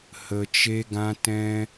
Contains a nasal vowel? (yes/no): yes